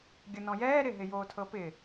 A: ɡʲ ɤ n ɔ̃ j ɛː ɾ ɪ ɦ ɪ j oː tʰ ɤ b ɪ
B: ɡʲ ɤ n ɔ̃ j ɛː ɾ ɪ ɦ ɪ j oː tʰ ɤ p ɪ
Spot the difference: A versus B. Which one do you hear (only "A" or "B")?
B